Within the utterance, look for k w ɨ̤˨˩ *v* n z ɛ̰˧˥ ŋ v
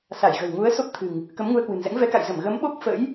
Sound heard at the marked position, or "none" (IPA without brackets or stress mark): none